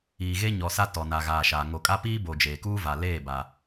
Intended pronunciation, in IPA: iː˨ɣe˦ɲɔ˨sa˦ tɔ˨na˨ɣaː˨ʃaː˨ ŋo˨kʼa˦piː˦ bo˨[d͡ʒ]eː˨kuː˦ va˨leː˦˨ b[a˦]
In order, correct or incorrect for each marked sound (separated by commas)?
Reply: correct, correct